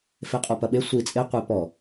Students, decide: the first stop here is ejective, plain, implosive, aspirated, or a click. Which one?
ejective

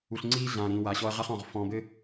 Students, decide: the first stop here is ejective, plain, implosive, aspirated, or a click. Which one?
click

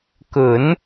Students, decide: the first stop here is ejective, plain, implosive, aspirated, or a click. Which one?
plain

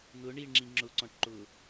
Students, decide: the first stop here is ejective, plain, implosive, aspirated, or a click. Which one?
click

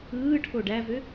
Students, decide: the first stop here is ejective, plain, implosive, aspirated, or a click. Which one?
aspirated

